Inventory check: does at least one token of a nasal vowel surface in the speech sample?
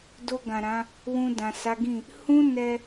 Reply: yes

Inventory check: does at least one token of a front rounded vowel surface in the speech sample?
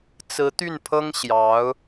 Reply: yes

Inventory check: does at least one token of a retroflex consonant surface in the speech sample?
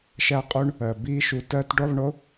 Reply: yes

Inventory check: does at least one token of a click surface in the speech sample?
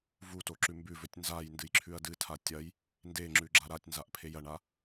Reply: yes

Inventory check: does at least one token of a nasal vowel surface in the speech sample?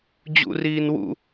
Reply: no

